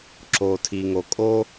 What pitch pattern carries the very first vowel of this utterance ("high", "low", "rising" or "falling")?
low